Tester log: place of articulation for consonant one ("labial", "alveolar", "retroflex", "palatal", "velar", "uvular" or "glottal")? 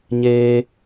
palatal